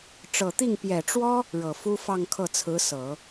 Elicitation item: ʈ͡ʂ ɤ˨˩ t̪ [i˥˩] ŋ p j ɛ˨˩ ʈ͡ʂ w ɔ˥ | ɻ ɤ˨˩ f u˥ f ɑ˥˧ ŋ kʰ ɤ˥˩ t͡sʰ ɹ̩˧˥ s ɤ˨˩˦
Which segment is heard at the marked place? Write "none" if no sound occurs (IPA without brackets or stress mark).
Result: i˥˩